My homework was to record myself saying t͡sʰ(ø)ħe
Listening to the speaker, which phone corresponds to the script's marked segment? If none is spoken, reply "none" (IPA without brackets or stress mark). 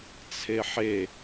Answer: e